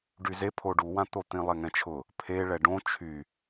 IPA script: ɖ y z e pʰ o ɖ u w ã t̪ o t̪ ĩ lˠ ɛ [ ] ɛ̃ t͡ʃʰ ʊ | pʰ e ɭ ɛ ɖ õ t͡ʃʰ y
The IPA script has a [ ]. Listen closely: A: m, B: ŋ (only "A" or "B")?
B